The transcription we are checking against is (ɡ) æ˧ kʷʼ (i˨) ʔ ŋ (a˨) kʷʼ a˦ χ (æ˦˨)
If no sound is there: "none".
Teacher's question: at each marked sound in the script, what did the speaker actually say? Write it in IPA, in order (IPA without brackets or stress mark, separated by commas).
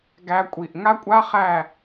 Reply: ɡ, i˨, a˦, æ˦˨